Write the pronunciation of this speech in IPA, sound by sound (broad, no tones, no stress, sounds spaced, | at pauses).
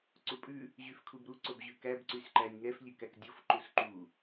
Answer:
ǀ u pʼ ʉ | ʑ y f kʰ u b ɾ u ǀ o b ʑ ʉ k æ b ǀ y s ǃ æ nʲ ŋ ɛ f lʲ ʉ k æ k dʲ o f ǃ u s ǃ u